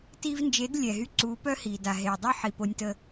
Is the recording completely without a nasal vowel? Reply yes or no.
yes